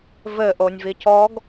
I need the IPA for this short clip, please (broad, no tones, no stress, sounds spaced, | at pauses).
v ɘ ʔ o nʲ v i c ɔ ɡ